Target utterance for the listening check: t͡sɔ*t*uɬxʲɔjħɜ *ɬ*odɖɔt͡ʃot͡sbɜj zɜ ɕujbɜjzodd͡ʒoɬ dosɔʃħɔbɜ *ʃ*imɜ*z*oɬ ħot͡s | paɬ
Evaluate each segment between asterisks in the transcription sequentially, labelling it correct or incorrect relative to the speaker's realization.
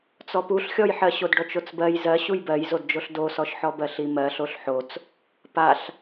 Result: incorrect: p, incorrect: ɕ, incorrect: ɬ, incorrect: ɬ

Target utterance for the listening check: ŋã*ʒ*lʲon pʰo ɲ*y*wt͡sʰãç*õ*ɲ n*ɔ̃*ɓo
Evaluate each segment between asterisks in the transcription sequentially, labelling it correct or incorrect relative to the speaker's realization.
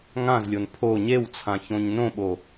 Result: incorrect: z, incorrect: e, correct, incorrect: õ

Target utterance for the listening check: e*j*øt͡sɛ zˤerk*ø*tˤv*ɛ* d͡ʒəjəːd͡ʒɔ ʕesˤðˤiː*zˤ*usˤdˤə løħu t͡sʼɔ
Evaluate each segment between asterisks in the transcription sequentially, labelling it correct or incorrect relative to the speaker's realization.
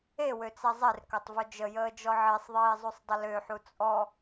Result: incorrect: w, incorrect: œ, incorrect: œ, correct

